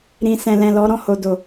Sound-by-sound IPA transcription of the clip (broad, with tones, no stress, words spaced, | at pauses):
ɾĩ˨sɛ̃˨ lɛ̃˨ lɔ˨˦ ɾɔ̃˦˨ho˨do˨